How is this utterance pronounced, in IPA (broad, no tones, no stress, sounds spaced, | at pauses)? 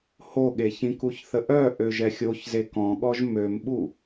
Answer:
h o ɠ e ç ĩ k u ç θ ə ʔ œ ʔ ø ʒ ɛ xʲ o ç z e k ɔ̃ ɠ ɔ ʒ m ø m ɓ u